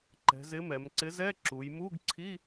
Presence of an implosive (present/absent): absent